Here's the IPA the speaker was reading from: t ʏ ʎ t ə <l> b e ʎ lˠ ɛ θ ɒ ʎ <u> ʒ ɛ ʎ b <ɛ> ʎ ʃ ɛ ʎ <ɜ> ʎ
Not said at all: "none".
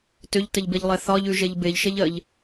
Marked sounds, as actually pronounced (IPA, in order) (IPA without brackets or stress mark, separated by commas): ʎ, ʉ, e, ɜ